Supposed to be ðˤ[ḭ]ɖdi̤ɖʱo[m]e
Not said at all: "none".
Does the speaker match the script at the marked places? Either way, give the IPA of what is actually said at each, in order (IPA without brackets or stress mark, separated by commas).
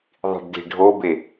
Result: i̤, b